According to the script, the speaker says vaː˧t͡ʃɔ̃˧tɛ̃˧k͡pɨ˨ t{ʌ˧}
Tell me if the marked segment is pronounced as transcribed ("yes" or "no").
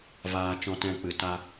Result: no